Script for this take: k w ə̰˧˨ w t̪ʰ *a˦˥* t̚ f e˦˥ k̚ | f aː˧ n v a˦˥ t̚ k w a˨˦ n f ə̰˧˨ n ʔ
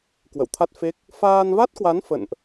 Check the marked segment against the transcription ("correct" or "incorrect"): correct